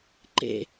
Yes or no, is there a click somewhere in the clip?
yes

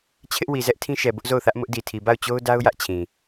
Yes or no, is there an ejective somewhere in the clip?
no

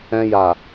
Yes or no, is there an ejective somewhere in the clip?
no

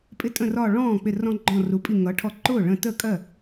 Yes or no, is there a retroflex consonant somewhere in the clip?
yes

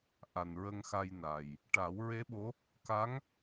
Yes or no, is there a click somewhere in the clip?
no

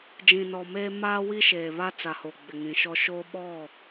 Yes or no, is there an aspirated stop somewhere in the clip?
no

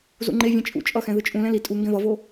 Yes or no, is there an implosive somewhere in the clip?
no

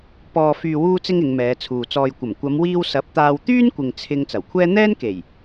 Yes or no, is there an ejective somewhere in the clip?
no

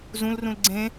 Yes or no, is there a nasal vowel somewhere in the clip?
yes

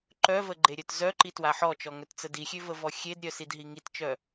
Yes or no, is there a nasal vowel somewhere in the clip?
no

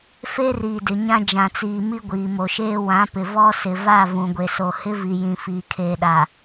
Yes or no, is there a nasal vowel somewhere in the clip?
yes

